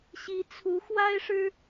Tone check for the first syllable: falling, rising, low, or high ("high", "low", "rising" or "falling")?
rising